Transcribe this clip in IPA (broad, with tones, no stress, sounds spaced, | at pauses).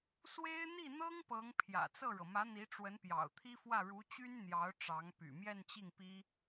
s w e˥ ɪ̯ n̪ i˥˩ n̪ ɤ˥ ŋ p ɤ˧˥ ŋ pʰ j ä̰˨˩ t͡s ɤ˥˩ ɻ ɤ˩ m ä˧˥ n̪ i˧˥ ʈ͡ʂ w ə˧˥ n p j ɑ̰˨˩ ʊ̯ t̪ʰ i˥ f w ä˥˩ ɻ u˧˥ t͡ɕ y˥ n n̪ j ɑ˧˥ ʊ̯ ʈ͡ʂ ɑ˧˥ ŋ p y̰˨˩ m j ɛ˥˧ n t͡ɕ i˥˩ ŋ p i˥